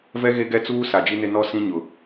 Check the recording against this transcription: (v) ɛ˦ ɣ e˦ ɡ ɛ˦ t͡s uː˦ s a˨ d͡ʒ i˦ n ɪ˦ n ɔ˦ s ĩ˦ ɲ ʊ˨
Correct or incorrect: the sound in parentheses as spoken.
correct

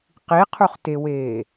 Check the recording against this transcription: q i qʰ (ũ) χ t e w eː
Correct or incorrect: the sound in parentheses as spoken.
incorrect: u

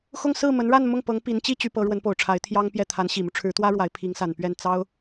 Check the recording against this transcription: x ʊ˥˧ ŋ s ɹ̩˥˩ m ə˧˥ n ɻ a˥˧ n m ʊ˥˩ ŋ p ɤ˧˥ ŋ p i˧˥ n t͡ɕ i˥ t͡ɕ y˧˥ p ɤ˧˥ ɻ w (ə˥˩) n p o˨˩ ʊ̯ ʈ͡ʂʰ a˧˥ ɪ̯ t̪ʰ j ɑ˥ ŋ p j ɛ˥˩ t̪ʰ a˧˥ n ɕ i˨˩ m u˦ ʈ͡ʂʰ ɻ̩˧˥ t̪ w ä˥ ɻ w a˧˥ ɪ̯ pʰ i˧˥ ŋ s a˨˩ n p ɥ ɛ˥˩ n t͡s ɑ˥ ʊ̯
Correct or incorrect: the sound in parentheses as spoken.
incorrect: ə˧˥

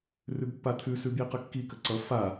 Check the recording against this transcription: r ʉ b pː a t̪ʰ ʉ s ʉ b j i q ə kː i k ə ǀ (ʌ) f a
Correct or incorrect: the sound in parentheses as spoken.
correct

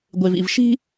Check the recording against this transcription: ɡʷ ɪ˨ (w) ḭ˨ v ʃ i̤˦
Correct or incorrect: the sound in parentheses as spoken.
incorrect: v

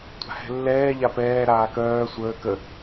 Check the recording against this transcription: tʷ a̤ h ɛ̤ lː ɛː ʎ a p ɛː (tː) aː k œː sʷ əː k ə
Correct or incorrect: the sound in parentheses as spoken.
incorrect: ɾ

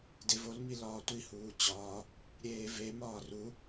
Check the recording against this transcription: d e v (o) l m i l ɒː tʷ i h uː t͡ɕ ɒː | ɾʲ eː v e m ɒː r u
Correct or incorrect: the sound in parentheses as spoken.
correct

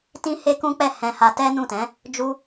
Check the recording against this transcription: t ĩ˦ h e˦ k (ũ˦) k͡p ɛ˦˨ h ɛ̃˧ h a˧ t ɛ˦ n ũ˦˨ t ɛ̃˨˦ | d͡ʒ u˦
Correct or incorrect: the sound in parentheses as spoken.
correct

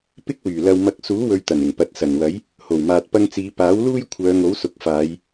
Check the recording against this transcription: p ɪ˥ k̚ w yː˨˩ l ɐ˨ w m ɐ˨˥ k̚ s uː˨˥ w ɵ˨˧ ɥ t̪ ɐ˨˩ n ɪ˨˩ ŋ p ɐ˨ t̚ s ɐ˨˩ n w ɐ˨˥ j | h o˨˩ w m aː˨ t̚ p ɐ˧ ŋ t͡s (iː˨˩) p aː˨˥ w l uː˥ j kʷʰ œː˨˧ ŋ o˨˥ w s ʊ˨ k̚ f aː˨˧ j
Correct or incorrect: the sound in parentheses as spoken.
incorrect: iː˨˧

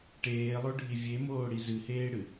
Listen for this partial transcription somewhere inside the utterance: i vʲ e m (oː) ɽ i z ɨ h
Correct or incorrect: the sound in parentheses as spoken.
correct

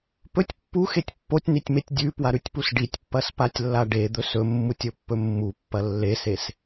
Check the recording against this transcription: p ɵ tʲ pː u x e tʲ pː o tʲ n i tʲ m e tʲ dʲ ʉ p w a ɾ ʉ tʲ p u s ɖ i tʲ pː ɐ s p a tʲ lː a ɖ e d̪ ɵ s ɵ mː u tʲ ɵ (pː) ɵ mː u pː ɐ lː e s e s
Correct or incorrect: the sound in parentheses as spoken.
correct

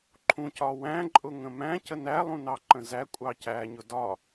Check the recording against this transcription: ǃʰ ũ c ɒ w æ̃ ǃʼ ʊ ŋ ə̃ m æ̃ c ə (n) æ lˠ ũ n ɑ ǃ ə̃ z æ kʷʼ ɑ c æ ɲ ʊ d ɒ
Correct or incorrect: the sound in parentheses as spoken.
correct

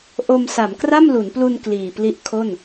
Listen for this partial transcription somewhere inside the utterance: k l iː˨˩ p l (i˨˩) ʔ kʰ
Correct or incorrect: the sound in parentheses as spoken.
incorrect: i˦˥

